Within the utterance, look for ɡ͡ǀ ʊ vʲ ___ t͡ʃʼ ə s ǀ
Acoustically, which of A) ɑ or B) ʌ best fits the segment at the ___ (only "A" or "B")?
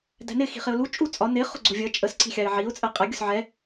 B